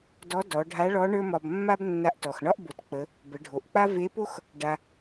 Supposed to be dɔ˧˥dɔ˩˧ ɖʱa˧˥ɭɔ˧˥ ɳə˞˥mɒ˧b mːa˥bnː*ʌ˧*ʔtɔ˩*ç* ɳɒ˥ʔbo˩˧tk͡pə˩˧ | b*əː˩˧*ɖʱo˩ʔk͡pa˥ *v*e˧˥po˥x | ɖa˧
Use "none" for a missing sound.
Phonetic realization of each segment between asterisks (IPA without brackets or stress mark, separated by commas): a˧, x, ə˩˧, v